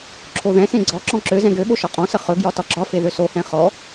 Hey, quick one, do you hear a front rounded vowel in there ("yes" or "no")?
yes